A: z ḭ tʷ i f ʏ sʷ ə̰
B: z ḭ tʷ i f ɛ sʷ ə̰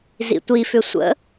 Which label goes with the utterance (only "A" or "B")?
A